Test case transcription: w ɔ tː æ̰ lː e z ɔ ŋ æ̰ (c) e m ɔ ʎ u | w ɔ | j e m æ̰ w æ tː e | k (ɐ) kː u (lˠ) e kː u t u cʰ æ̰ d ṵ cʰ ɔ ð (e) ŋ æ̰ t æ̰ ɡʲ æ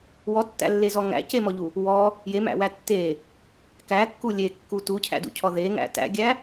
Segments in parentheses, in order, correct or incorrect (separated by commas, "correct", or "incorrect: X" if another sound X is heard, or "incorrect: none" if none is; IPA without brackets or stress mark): correct, incorrect: æ, incorrect: lʲ, correct